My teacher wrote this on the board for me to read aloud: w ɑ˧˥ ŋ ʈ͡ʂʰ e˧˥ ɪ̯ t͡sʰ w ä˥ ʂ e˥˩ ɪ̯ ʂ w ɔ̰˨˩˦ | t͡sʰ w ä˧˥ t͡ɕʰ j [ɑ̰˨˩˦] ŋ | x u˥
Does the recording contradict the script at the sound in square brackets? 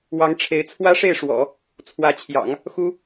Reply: no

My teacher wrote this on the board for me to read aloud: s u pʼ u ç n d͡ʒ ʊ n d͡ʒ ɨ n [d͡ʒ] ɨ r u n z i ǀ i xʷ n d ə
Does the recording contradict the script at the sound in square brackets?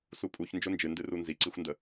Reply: yes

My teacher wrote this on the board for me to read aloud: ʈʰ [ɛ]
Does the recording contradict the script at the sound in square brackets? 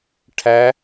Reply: yes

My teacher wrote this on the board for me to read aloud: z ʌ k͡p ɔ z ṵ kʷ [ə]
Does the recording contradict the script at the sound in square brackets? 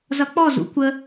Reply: no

